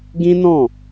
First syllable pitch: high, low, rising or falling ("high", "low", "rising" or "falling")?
high